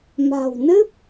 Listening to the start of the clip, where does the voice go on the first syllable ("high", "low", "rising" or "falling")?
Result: low